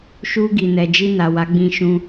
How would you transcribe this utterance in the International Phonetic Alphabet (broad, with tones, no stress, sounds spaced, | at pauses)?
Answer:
ʃ u˧ ɡ i˨ n ɛ˨ d͡ʒ i˧ n a˨ w a˨˦ ɡ͡b ĩ˧ ʃ ũ˧